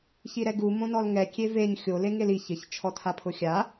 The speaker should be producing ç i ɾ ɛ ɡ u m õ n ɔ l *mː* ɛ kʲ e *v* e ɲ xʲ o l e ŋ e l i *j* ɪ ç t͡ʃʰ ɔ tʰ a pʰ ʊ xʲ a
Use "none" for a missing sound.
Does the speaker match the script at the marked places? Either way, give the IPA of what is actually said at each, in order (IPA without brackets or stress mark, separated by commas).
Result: ŋ, v, ç